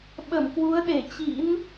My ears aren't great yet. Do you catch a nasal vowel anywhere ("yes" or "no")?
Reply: no